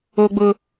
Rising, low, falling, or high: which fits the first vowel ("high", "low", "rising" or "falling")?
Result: high